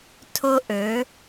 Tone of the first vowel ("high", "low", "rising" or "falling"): high